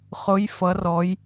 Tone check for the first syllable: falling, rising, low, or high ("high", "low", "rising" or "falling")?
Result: rising